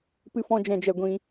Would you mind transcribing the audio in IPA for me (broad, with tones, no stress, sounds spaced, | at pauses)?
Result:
p ɨ˦ f ɔ̃˦ d͡ʒ ɛ̃˧ d͡ʒ ɛ˧ ɡʷ ĩ˧